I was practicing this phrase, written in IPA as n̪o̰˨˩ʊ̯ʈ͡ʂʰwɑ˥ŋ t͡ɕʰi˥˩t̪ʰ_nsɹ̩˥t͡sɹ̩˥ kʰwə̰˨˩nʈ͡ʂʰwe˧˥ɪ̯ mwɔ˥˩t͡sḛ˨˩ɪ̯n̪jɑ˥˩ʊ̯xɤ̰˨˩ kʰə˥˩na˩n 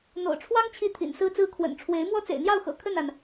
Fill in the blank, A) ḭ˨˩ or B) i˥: A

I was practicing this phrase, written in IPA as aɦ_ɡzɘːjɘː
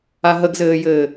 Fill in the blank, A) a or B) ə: B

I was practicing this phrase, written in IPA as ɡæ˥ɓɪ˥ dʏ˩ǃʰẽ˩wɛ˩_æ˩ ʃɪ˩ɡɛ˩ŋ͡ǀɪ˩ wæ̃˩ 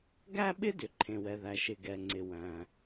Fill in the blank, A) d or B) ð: B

